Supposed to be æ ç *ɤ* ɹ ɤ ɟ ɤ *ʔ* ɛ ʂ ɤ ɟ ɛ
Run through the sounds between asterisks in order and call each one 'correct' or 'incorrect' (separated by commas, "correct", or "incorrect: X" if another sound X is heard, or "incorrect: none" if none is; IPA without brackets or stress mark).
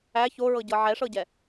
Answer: incorrect: o, incorrect: ʕ